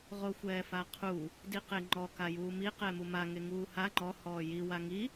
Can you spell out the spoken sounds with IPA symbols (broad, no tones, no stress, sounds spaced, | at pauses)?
ʁ o xʷ ɛː f a qʰ u | d i q e ŋ͡ǃ ɔ k a j uː m i q ɛ m u m a ŋ e ŋ uː h a ŋ͡ǃ ɔ h ɔː j i w a ŋ i